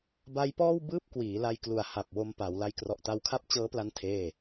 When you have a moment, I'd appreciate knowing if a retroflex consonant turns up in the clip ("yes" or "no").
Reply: no